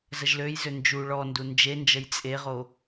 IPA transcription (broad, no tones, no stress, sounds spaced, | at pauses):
z ə ʒ l ø j z ø n d͡ʒ u ɭ ɔ n d u n d͡ʒ e n d͡ʒ ə j t͡sʼ e ʁ o